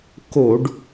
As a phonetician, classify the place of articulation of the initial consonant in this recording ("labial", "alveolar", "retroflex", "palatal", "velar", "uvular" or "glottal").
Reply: velar